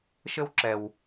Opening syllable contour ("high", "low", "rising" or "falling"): high